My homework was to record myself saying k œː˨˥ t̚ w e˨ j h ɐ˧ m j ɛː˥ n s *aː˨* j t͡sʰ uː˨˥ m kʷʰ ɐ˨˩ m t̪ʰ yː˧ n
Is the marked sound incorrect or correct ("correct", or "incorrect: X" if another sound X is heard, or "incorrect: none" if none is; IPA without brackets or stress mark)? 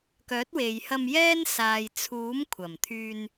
correct